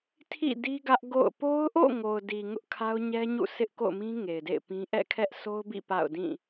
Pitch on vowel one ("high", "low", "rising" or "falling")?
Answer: falling